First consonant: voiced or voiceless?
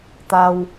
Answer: voiceless